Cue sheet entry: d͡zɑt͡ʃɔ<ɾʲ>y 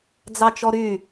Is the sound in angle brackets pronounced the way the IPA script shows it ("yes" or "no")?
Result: no